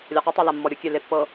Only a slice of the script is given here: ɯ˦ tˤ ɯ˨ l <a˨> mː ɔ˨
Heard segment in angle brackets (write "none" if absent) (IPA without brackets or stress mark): a˨